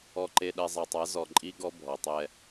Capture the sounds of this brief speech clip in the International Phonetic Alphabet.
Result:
ɔ˨ǃe˨ ɗɛ˨zˤa˨tˤa˨˦ zɔ˨ǃʼi˦ɡɔ˦ bʱɔ˨tˤɛ˦

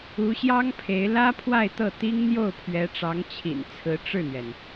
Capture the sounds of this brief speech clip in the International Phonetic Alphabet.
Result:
u˧˥ɕjɑ˥ŋpʰe˧˥ɪ̯ lä˥ pʰwa˥˧ɪ̯t̪ɤ˥˩ t̪i˥ŋ n̪jo˥˩ʊ̯pʰɥɛ˧˥ʈ͡ʂɑ˧˥ŋ t͡ɕʰḭ˨˩n t͡sʰɹ̩˧˥ ʈ͡ʂɻ̩˥˩n̪ɥɛ˩n

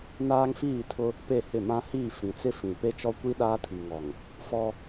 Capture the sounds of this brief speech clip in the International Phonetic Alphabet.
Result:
naː˦ŋfiː˦˨tʰʊ˦ | pe˦˨hɪ˦˨ mã˦hiː˦˨ fĩ˨t͡sɪ˦fĩ˨ pe˦t͡ʃɔ˦ kʷi˦ ɗaː˦tʰi˨ŋɔ˨ŋ | fɔ˦

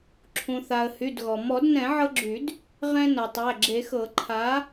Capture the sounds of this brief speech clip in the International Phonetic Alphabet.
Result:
ǁʰũ˩θa˩ə̯ hy˩˧˩dɣɔ˩ mɔ˨˩˦dnɛ̃˨˩˦ʕɤ˧ɡ͡ǁy˨˩˦d | ʁɛ̃˧ nɤ˩tˤæ˩˧˩ɡ͡ǁe˨˩˦xɤ˨˩˦ ǃʰa˨˥

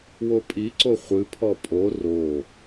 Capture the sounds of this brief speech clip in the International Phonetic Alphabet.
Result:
wopʼiǀo χʷɨpʰɔ pʼo ro

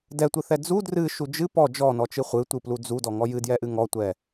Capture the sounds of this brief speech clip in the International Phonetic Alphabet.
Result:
dɛtʷɨθɛ d͡zu drɨʃu d͡ʒɨ pɔ d͡ʒɔnɔt͡ʃɨ χʷɨtʷɨplu d͡zudɔŋɔ jɨdjɛʔɨ ŋɔtʷɛ

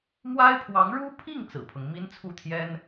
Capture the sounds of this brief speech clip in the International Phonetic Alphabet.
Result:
mwa˥ɪ̯pʰwɑ˧˥ŋ ɻu˥pʰi˥˩ŋ t͡sɹ̩˨˩pʰɤ˦ŋ mi˥nt͡sʰu˥˩t̪ʰjɛ˥n

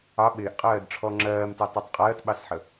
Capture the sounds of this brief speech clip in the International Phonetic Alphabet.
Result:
ɑ ɓɪːʔqʼɜːdʈ͡ʂʰɔ ŋ͡ǁɜːmtætˤɪtˤ qʼɜːtɓɑsħə

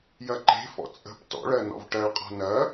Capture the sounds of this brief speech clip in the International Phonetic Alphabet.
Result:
jɐǃe̤fɔ̰ t͡sʼə̤p tɔ̰ɭɜ nɔ̰vʈɜɭqʼɔ̤ nɐ

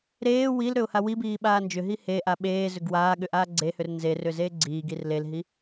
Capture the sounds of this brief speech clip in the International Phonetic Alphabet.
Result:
ɾeː wilɾʏʊ̯ hawibiː ɓaːnd͡ʒʏɦi heʔa ɓeːzʏɡ waːɠʏ ʔaːɡ͡ǀehʏr nzerʏ zeːɡ͡ǀiːɡir lelɦi

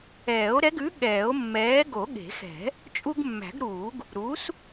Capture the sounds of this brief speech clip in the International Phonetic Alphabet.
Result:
ɛː˨˩˦o̯ɾɛ˨˥ɡʉ˨˥ ɠɛː˨˩˦o̯mːɛː˨˥ ɡo˨˩˦ɠe̤˨˩˦xɛ̤˨˩˦ | t͡ʃʼu˦ɡmːæ̤˨˩˦ɡɾuː˨˩˦ɡ | ɾuː˨˥s

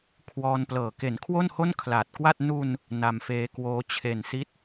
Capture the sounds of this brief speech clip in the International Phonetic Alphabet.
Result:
kʰwɔː˧nplɤː˨˩ ke˩˦n kʰwo˥˩nho˥˩n kʰlaː˨˩t̚kwa˥˩t̚ nu˧n | na˧mfeː˦˥kwoː˦˥ t͡ɕʰe˨˩nsi˦˥t̚

